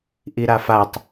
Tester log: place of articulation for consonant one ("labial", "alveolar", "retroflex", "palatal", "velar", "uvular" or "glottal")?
glottal